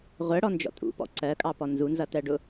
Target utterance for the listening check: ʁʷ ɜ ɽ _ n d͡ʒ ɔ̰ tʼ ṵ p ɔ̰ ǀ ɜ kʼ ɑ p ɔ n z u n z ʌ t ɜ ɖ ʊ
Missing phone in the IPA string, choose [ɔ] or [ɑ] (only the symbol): ɔ